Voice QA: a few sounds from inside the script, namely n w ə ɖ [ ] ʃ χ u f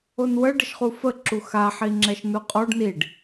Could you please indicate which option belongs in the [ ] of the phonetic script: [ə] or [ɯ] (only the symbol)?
ə